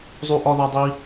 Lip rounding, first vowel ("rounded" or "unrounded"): rounded